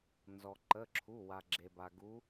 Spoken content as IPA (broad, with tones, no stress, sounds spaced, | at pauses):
n z ɔ˩ ǃ ə˩˧˩ ǁʰ u˩˧˩ w a˩ ɡ͡ǁ e˩ b a˩ ɡ u˨˦